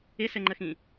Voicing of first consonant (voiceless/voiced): voiceless